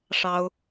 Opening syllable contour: high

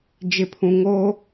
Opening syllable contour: low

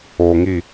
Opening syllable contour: low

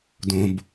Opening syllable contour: low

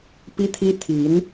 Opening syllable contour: high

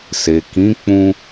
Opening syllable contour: low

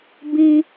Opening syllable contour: high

